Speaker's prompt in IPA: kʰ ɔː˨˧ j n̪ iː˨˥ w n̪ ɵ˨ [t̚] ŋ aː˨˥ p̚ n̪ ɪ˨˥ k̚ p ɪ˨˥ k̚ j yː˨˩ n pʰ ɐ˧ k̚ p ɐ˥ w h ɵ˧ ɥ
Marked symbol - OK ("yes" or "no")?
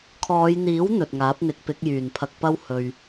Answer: yes